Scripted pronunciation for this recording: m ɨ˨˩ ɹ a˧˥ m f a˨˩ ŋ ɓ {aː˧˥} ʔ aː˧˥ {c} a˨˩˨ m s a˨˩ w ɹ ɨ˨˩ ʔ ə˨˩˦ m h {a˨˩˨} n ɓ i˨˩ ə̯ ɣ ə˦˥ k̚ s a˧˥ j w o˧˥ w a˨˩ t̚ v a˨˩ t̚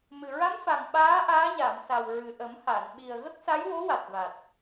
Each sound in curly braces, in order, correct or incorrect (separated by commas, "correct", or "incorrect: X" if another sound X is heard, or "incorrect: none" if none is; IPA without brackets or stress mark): correct, incorrect: ɲ, correct